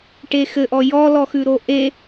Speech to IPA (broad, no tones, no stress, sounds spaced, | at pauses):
ʈ e x ɘ ʔ ɔ j ɔ l ɔ x ʉ ɾ o ʔ e